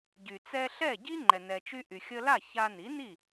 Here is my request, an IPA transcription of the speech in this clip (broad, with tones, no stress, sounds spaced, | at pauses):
ɟ y˩ t͡s ɛ˧ ɬ ɛ˥˩ ɟ i˥ ŋ͡ǃ ɛ˩ n ɛ˩ t͡ʃ y˧ ʔ y˩ xʲ ə˧ l a˥˩ ç a˧ n i˩˥ n i˥˩